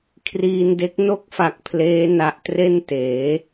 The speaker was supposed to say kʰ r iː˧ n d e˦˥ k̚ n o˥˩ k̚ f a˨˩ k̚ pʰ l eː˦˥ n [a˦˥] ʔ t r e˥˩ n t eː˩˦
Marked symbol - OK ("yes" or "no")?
yes